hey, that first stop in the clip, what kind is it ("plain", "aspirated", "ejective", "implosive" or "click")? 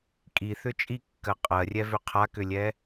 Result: ejective